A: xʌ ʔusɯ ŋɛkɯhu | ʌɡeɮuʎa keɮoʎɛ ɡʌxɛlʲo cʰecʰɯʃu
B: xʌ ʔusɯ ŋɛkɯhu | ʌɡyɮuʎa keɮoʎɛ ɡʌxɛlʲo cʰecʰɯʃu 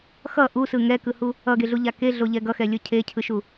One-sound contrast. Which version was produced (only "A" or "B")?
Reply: A